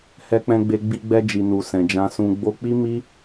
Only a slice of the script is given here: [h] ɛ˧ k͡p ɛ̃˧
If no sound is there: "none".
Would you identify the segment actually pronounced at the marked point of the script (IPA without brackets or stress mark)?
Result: h